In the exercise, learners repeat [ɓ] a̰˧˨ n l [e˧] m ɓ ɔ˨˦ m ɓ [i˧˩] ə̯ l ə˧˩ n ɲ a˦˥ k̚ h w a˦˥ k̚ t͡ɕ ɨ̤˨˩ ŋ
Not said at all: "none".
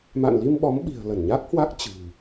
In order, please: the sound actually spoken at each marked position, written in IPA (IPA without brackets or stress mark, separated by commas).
m, i˧, i̤˨˩